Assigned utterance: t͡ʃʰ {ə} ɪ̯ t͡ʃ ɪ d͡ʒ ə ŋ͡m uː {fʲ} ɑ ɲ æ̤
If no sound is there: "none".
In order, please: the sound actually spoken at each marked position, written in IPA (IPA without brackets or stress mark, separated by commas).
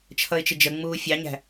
ʌ, fʲ